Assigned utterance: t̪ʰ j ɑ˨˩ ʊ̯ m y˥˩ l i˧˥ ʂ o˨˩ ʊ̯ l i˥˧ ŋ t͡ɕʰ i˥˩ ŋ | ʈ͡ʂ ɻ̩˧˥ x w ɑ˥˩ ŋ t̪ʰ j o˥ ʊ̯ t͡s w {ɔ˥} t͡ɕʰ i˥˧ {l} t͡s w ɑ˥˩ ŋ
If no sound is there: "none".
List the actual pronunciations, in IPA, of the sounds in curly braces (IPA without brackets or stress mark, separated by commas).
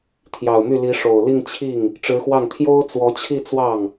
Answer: ɔ˧˥, none